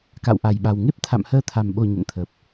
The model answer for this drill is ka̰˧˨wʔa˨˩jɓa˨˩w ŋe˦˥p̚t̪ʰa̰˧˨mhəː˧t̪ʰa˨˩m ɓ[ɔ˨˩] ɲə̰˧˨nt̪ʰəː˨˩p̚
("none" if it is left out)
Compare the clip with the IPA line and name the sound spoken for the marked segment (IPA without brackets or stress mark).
o˨˩